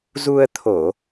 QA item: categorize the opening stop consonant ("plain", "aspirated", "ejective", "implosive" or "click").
aspirated